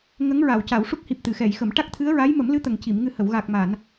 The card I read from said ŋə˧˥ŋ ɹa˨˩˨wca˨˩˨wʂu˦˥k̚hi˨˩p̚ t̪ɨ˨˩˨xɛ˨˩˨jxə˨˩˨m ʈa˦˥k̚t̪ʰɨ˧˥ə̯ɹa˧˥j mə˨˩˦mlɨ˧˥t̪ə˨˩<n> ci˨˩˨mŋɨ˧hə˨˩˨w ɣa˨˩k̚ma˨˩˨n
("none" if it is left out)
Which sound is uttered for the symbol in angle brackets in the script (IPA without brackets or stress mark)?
ŋ